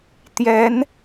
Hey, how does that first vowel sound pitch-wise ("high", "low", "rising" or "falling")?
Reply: rising